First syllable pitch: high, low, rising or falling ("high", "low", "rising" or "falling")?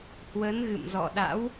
rising